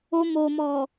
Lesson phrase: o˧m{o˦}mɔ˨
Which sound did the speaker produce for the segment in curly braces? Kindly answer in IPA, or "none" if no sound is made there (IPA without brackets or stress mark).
o˨